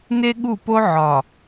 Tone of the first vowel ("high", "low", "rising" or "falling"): high